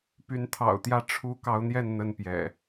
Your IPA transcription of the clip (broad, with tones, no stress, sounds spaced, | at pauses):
p y˨˦ n t̪ʰ ɑ̰˨˩ ʊ̯ t̪ j ä˥˨ ʈ͡ʂʰ u˦ k ɑ˨˦ ʊ̯ n̪ j ɛ˥˨ n n̪ ə˥˨ n p j ɛ̰˨˩